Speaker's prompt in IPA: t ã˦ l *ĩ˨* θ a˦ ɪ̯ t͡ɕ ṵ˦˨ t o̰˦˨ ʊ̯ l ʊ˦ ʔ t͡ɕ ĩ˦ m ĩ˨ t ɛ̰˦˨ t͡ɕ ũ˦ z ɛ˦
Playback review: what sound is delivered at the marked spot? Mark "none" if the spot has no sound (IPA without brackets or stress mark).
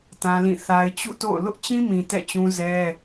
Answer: ĩ˦˨